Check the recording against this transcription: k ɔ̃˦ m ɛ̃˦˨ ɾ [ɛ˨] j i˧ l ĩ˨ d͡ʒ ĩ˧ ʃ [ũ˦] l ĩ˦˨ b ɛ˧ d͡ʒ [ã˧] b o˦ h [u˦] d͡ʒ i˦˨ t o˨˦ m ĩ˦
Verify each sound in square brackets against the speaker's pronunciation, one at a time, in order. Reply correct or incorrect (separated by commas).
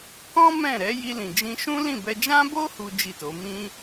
incorrect, correct, incorrect, correct